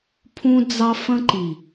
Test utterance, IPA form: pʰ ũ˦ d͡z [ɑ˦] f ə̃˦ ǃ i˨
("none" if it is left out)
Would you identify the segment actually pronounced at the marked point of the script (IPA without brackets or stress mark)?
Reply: ɑ˦